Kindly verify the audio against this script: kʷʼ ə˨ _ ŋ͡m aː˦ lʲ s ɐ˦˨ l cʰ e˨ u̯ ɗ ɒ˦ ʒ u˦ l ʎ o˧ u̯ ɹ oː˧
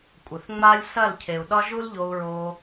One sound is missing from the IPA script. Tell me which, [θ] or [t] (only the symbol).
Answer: θ